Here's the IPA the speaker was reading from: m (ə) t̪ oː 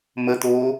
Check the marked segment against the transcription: correct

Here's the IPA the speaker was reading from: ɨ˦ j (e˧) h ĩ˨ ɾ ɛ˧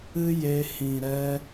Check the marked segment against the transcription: correct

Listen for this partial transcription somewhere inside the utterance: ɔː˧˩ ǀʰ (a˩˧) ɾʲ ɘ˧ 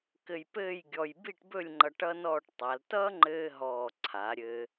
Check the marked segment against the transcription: correct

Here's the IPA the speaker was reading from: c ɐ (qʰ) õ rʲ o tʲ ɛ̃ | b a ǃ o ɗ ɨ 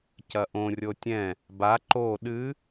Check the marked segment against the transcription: incorrect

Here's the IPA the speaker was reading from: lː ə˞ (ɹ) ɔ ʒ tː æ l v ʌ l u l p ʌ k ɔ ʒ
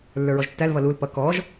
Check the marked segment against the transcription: correct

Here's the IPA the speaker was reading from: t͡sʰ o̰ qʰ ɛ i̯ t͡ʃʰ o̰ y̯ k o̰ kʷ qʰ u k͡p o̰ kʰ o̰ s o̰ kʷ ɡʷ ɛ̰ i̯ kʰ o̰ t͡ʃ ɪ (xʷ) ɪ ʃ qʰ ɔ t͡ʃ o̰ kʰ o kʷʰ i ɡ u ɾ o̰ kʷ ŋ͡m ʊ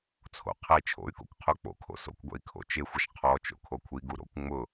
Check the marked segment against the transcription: correct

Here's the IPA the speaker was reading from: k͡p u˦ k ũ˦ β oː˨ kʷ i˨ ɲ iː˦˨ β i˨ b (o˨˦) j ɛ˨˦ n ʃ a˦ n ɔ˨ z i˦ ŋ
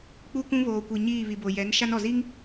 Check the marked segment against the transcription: incorrect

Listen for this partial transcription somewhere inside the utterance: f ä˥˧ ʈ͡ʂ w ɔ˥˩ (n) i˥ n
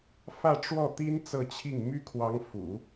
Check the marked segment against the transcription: incorrect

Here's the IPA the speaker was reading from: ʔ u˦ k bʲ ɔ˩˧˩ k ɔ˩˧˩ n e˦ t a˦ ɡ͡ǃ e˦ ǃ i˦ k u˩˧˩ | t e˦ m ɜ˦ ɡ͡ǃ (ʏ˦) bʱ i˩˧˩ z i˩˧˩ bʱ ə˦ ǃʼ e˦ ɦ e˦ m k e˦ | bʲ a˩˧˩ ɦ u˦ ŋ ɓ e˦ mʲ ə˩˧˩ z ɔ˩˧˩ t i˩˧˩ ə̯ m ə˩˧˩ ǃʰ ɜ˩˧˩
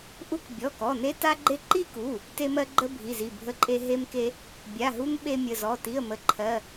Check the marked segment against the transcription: incorrect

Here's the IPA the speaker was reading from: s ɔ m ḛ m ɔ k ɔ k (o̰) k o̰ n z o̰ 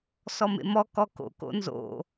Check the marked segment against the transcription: correct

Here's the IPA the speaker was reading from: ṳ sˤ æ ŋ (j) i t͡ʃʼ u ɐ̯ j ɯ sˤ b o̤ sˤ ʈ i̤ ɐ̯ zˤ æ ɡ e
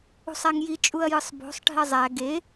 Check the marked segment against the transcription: correct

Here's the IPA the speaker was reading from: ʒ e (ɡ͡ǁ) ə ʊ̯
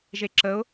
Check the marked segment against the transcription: incorrect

